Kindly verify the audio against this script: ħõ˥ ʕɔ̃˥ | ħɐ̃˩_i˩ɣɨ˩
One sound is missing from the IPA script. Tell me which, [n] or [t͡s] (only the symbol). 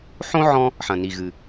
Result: n